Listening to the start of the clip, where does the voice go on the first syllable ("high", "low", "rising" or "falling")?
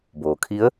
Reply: low